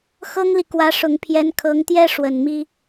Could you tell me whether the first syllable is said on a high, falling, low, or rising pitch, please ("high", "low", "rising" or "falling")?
high